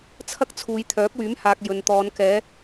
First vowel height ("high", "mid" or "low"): low